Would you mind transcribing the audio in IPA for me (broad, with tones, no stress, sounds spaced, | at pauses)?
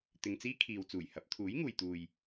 t̪ ɪ˧ ŋ t͡s iː˥ kʰ iː˨ w t͡s uː˨˩ j h ɐ˨˥ p̚ t̪ʰ uː˨˥ j ŋ uː˨ j t̪ uː˨ j